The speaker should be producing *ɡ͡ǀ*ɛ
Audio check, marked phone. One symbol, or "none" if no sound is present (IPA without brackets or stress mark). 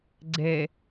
ɡ͡ǀ